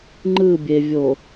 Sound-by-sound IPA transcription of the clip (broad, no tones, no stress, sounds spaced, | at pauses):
ŋ͡ǃ ɯ bʲ e vʲ o